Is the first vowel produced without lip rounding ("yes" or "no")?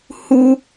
no